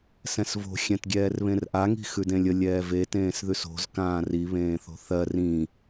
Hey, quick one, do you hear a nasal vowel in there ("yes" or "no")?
yes